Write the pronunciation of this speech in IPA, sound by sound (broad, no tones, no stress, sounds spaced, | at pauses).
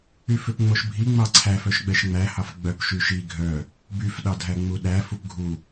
y f ø p ŋ͡m o ʃ bʱ i ŋ͡m ɑ ǀʰ æ f œ ʃ ɡ͡b ɛ ʃ ŋ͡m æ h ɑ f ɡ͡b œ p ʃ y ʃ i ɡʱ œ | b y f ɗ ɑ dʱ æ ŋ͡m u ɗ æ f u p ɡʱ u